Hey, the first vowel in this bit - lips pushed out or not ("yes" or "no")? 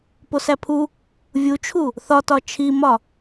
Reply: yes